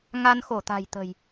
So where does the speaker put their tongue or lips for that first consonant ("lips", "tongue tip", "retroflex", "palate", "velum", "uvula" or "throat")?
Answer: velum